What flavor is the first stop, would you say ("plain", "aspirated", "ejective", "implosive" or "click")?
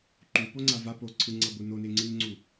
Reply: click